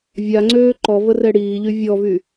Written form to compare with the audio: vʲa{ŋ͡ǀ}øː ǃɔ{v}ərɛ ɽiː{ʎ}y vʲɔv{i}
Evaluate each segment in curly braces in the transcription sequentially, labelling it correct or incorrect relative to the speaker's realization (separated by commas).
correct, correct, correct, incorrect